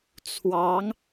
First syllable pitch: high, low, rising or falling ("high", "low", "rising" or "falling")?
rising